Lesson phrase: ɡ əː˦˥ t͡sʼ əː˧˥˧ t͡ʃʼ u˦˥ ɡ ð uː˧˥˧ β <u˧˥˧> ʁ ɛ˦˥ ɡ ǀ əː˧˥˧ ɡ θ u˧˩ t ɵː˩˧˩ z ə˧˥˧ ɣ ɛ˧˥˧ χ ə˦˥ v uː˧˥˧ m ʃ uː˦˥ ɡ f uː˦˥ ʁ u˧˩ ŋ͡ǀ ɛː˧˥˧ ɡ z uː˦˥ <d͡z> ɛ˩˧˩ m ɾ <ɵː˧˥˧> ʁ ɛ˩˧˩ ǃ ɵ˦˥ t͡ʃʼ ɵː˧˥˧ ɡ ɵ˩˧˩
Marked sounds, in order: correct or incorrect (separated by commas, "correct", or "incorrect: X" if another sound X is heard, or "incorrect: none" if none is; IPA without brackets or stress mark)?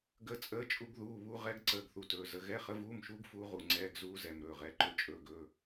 incorrect: u˦˥, incorrect: z, incorrect: ɵː˩˧˩